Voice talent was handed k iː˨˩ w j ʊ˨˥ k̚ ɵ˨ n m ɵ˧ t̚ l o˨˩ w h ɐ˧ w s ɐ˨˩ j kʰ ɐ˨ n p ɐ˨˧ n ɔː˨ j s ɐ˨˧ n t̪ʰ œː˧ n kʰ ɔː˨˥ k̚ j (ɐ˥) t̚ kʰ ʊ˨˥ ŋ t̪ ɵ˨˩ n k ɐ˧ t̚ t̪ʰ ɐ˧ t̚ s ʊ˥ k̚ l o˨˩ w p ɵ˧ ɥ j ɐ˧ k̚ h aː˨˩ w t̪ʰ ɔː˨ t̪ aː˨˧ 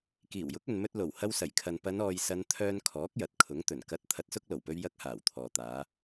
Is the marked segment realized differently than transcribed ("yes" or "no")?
yes